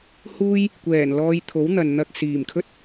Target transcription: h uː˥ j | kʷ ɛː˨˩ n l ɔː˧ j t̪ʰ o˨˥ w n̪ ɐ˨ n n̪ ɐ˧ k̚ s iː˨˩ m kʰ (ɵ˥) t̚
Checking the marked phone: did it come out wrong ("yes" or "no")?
no